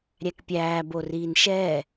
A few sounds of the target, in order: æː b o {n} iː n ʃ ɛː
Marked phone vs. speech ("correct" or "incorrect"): incorrect